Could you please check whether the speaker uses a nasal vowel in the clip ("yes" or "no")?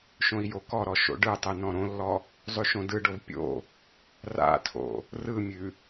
yes